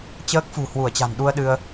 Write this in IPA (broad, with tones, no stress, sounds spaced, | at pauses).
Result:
t͡ɕ əː˦˥ k̚ f ṳ˨˩ h w u˧˩ ə̯ t͡ɕ a̤˨˩ n ɗ u˧ ə̯ ɗ ɨ˧ ə̯